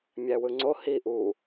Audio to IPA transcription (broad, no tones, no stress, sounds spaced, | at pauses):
mʲ æ w ɯ ŋ͡ǀ o h i ʔ uː